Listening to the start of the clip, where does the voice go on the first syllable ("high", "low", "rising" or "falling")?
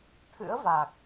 rising